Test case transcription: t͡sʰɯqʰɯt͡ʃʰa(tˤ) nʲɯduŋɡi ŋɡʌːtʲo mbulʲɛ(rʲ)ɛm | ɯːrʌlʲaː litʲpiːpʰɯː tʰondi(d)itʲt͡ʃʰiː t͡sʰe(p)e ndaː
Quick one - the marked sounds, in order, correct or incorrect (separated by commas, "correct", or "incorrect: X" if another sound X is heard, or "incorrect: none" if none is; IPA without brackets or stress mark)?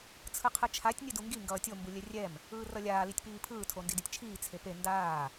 incorrect: tʲ, correct, correct, correct